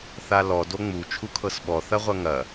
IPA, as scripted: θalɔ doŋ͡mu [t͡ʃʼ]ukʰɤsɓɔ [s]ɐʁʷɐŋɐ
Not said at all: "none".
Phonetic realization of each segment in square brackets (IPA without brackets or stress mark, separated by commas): t͡ʃʰ, θ